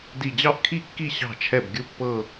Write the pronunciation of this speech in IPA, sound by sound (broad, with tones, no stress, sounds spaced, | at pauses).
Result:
d i˧˩ d͡ʑ ɑ˥˨ ʔ kʰ i˥˨ kː i˥˨ ɕ ɑ̤˧˩ t͡ʃʰ ɛ˧˩ b ɡʲ u˧˩ pː ɤ˧˩